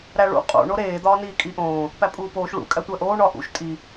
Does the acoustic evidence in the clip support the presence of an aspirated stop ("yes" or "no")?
no